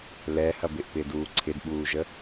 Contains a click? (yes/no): yes